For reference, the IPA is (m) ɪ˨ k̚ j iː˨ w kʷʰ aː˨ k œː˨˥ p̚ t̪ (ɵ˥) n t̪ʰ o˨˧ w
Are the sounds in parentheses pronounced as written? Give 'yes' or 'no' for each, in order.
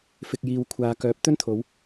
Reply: no, yes

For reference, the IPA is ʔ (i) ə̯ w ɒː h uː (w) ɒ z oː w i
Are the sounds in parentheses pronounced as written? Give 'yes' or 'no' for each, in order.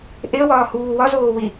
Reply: no, yes

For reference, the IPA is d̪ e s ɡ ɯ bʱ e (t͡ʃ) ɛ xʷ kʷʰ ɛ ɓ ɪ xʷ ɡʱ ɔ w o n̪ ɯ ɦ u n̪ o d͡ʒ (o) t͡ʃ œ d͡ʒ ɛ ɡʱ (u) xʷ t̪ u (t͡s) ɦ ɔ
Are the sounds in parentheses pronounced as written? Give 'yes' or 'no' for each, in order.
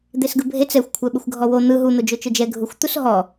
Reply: no, yes, yes, no

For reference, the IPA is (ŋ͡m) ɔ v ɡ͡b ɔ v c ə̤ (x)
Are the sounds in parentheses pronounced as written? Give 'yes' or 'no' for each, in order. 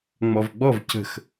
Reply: yes, yes

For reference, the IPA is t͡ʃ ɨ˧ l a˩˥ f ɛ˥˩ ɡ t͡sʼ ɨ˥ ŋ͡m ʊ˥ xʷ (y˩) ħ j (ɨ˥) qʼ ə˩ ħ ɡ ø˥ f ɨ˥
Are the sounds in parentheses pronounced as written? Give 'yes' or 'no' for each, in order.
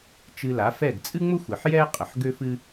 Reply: no, no

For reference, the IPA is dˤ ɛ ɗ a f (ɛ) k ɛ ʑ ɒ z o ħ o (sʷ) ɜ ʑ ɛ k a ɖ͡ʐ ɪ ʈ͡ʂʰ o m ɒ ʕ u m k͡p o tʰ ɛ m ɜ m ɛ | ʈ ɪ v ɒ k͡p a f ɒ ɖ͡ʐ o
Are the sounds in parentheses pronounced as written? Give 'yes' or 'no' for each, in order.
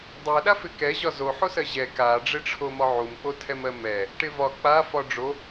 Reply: no, no

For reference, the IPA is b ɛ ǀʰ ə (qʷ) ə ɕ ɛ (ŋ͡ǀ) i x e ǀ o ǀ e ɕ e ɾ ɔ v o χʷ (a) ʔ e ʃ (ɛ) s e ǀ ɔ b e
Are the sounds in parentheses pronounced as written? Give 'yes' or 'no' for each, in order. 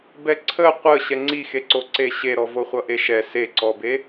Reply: yes, yes, no, yes

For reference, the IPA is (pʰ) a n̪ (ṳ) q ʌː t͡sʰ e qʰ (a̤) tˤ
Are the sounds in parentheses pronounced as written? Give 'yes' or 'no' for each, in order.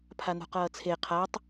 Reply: yes, yes, no

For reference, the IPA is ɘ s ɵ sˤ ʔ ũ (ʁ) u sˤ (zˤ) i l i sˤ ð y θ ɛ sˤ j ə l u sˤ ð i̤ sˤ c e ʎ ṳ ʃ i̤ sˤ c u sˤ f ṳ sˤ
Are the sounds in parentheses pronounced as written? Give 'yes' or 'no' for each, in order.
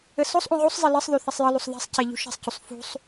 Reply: yes, yes

